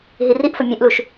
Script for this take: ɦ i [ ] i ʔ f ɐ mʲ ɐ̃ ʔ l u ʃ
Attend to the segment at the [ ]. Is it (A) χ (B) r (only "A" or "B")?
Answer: B